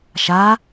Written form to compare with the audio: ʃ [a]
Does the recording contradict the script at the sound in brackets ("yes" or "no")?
no